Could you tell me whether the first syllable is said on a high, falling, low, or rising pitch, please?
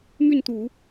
falling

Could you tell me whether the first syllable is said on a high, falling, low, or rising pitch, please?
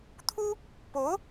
high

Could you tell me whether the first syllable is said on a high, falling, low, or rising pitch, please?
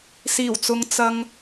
low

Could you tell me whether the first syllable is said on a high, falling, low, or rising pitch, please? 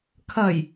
low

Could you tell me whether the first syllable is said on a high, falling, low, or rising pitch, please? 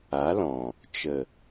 rising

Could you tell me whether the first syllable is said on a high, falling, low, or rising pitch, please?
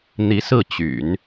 rising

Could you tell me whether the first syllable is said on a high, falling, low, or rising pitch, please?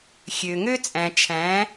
low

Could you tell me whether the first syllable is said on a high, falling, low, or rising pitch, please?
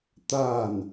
falling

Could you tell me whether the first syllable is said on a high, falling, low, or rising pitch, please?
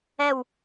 falling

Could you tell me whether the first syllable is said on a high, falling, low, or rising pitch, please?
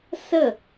falling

